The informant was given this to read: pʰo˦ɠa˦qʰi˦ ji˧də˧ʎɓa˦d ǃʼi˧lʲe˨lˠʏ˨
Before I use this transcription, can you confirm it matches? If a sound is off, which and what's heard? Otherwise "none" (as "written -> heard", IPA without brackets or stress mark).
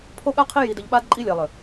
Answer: none